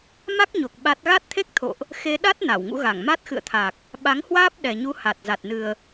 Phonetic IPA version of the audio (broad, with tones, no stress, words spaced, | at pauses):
ma˦˥k̚ɲo˨˩k̚ ɓa˦˥t̚ ɣa˦˥t̚t̪ʰe˦˥k̚t̪ʰo̰˧˨ʔ | xe˧ɗa˦˥t̚ na˧˩wŋṵ˧˥ɣa˧˩ŋ ma˦˥t̚xɨ̰˧˨ə̯t̪ʰa˨˩k̚ | ɓa˨˦ŋhwaː˦˥p̚ɗɛ˨˩ɲu˨˦ ha˨˩t̚za˨˩t̚nɨ˨˩ə̯